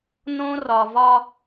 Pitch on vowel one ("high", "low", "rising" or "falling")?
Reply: high